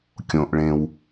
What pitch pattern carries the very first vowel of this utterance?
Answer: low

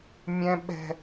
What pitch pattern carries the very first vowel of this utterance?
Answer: high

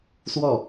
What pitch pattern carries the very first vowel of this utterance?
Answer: falling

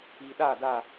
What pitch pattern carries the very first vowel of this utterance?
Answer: low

